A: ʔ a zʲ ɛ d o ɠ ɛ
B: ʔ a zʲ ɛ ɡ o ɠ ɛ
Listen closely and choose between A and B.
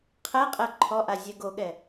B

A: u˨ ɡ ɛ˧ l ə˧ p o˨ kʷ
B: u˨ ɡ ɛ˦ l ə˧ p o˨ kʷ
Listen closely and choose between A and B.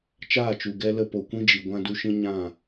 A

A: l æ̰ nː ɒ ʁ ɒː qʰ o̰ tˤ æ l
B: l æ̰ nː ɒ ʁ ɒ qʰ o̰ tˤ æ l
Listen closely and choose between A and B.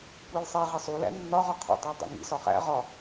B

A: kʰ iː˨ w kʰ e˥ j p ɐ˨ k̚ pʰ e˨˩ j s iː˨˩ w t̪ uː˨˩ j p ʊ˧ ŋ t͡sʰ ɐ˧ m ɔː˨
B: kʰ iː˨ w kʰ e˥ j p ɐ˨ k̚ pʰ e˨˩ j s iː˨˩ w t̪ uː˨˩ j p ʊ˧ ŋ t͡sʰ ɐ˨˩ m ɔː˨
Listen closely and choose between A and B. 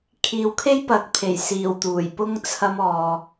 A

